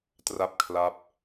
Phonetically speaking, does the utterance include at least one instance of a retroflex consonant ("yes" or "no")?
no